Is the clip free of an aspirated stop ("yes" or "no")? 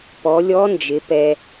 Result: yes